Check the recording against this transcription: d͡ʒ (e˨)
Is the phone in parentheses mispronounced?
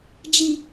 yes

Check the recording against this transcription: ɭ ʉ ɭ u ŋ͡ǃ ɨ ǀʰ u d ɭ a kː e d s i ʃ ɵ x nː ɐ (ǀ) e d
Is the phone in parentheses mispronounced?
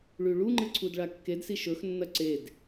no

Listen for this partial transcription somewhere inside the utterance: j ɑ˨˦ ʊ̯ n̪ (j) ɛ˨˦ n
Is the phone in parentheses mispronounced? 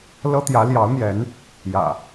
no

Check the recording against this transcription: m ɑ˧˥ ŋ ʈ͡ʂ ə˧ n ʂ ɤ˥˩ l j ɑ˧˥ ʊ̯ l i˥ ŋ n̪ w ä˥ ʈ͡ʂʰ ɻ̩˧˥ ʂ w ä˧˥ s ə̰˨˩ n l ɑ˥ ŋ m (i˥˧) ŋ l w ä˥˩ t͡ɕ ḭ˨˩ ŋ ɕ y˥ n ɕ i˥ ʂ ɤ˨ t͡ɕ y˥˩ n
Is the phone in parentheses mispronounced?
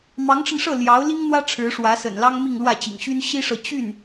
no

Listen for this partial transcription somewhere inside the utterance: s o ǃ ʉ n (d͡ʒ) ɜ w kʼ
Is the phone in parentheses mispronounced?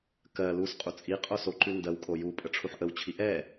yes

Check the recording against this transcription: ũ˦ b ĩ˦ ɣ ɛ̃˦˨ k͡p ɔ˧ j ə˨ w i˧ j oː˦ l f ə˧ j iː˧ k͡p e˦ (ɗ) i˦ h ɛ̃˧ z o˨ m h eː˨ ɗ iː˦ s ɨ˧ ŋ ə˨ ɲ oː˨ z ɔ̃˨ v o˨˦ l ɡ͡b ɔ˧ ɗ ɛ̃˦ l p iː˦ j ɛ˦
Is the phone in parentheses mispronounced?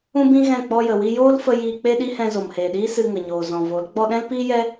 no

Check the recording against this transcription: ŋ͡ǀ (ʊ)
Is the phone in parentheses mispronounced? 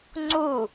yes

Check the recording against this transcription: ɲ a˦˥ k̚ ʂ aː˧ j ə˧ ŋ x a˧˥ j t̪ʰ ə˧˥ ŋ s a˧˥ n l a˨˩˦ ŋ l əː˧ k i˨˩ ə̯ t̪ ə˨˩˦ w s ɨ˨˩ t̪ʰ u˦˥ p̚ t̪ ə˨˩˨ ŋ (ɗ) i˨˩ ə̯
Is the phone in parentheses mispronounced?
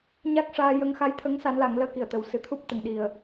no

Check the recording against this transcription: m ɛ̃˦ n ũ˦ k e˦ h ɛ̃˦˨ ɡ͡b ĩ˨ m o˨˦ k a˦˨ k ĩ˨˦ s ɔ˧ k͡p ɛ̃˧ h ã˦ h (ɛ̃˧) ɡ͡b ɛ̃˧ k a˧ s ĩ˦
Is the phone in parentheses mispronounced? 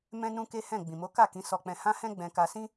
yes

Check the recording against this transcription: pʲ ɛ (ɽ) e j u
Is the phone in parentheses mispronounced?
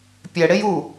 no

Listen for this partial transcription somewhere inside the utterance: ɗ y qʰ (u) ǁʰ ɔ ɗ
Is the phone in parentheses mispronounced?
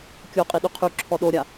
yes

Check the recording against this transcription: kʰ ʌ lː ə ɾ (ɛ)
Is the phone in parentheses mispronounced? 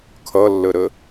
yes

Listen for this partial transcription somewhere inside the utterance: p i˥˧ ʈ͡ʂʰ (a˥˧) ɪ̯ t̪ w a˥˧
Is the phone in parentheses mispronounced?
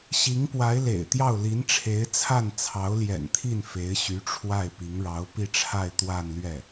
no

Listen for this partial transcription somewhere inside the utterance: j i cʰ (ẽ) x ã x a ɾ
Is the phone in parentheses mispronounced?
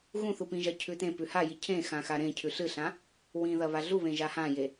no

